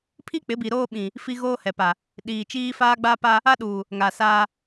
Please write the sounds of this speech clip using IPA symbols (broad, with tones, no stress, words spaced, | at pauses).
pʰi˦k͡pɪ˨˦bi˨ ɾoː˦ɓĩ˨ | fi˦ɣoː˦hɛ˨pa˨ | ɗiː˨t͡ʃiː˦ faː˦ɡ͡ba˦pa˦ | a˦ɗuː˨ | ŋa˨saː˦